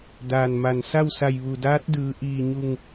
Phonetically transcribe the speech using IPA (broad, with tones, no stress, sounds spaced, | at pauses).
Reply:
d aː˩ n m a˩ n s a˥˨ w s a˧˩ j ʋ u˩ d aː˧˥ t̚ d ɯː˩˧ ʔ iː˧˩ ɲ u˧˩ ŋ